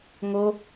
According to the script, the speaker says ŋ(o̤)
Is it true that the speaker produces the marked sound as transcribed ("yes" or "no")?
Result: no